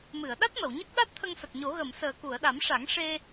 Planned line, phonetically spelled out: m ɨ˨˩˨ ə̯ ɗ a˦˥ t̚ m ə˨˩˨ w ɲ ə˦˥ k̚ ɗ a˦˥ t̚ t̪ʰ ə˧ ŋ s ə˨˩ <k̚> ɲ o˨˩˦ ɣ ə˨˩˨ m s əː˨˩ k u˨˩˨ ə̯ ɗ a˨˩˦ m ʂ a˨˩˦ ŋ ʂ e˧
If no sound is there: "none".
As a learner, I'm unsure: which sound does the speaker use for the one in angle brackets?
k̚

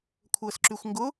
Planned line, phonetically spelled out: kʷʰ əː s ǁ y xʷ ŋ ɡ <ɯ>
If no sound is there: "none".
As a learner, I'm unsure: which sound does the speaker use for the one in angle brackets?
ʊ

